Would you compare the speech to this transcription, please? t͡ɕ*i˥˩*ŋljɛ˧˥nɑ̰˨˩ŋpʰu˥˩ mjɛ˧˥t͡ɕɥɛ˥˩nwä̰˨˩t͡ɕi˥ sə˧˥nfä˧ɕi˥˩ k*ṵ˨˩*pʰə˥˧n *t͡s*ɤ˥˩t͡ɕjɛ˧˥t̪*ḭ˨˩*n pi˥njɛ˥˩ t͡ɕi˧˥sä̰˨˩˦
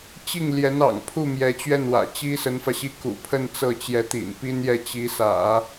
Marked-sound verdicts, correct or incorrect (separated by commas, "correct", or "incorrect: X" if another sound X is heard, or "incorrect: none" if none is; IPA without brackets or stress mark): correct, correct, correct, correct